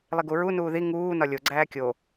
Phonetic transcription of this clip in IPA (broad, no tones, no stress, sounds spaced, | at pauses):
lˠ i ɡ u ɹ u n uː ð i ŋ uː n ɒ lʲ o ɡ͡ǀ æː kʲ o